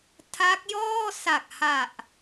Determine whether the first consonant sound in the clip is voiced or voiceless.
voiceless